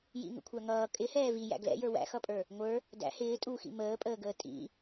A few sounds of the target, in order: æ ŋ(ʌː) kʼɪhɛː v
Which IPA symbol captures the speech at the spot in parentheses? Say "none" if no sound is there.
ʌː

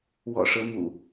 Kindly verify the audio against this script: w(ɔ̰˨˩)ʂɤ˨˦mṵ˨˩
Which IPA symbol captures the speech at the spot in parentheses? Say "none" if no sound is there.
ɔ̰˨˩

